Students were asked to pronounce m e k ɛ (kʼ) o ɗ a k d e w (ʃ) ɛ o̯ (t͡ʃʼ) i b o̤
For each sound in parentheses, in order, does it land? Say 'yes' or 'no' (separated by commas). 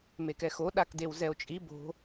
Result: no, no, yes